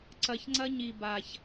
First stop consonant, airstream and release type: click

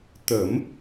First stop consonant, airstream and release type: plain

